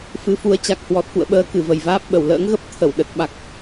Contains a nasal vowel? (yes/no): no